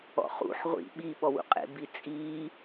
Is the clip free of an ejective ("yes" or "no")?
no